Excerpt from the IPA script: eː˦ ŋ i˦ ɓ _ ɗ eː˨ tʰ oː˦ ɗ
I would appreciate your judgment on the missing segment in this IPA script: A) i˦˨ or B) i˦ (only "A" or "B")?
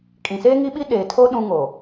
B